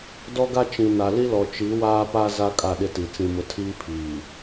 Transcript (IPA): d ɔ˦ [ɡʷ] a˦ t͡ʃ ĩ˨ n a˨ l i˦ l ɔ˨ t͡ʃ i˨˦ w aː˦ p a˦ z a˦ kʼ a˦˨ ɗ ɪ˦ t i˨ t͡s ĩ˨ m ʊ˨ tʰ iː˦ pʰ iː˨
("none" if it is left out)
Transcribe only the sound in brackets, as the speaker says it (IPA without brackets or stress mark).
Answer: ɡ